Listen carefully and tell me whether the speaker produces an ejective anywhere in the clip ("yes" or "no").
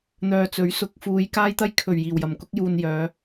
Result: no